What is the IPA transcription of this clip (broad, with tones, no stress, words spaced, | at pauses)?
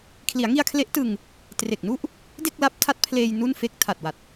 kʰli˩˦a̯ŋi˧a̯kʰle˦˥ʔtɯ˧ŋ | tre˨˩k̚nu˥˩ʔ | de˥˩k̚la˦˥p̚tʰa˦˥t̚pʰleː˧j nu˥˩nfe˥˩k̚ tʰa˨˩t̚wa˨˩t̚